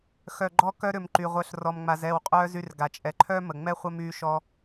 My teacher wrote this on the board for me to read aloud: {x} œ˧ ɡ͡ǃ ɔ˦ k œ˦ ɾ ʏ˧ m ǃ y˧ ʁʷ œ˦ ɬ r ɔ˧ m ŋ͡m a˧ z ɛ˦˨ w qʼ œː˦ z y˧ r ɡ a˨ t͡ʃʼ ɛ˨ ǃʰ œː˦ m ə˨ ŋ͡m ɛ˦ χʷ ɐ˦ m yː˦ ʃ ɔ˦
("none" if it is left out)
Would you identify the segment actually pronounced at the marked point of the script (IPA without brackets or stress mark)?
x